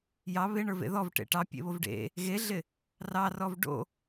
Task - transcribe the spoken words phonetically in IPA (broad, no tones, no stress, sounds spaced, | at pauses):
j ɑ β ɪ ɳ ə˞ v ḛ ð ɔ v ʈ ḛ ʈ ɑ pʲ ḛ β o v ɖ ḛ | ɣ e ɮ ɪ | r ɑ r ɔ v ɖ o̰